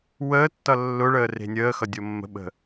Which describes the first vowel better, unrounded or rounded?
unrounded